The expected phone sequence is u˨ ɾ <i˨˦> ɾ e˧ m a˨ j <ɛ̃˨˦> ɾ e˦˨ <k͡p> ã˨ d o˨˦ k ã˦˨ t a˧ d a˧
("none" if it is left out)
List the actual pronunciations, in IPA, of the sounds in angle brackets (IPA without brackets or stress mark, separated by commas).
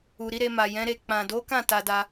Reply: i˨˦, ɛ̃˨˦, k͡p